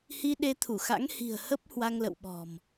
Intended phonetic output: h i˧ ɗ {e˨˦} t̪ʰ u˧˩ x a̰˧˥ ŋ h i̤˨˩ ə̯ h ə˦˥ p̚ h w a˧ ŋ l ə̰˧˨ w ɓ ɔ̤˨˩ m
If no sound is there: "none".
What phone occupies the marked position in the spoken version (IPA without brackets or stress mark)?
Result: e˨˦